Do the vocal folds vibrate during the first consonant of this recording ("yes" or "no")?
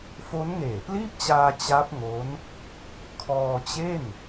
no